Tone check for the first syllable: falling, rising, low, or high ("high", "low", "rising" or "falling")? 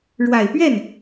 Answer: low